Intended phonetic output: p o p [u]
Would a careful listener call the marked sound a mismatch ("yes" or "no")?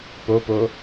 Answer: yes